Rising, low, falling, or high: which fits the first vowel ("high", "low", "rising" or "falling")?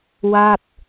falling